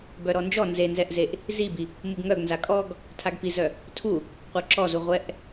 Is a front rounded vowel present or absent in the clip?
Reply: present